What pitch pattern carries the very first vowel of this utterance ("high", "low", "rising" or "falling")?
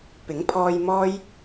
rising